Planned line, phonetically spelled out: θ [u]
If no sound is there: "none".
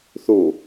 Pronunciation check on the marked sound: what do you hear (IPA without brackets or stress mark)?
u